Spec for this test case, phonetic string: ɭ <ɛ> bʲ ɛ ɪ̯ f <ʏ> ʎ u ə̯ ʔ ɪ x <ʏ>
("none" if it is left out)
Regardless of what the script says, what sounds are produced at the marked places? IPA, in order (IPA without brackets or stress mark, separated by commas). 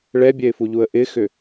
ɛ, u, ʏ